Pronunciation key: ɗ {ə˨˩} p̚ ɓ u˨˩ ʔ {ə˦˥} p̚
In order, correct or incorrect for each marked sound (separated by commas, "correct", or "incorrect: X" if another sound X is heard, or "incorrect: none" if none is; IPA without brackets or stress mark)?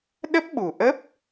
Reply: incorrect: ə˦˥, correct